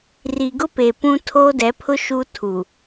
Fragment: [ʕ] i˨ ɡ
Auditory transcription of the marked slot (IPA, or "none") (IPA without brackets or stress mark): r